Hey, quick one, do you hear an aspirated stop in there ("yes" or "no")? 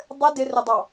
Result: no